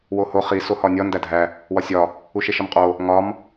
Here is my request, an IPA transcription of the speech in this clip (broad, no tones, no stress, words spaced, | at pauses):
woho χi sohɒnʲɒ ndædʱæ | wɒsʲɒ | uʃeʃɒmqʼo | ŋɒm